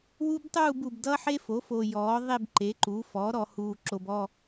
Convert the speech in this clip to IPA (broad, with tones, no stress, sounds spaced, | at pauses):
w u˥ b tˤ uː˥˧ b u˨ b d ʌ˥ ħ e˥ f o˩˥ f o˨ j ɔː˩˥ ðˤ e˥˧ b ǃ e˩˥ ǃ uː˩˥ f ɔː˩˥ ɾ ɔ˨ h uː˨ ǁ o˨ b ɔ˥˧